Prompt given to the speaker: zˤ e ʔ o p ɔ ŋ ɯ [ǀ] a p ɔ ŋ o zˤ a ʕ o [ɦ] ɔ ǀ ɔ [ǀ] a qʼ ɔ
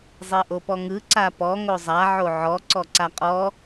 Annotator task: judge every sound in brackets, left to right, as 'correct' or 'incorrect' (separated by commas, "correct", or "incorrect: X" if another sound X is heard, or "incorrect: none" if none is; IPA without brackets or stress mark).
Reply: correct, incorrect: ʕ, correct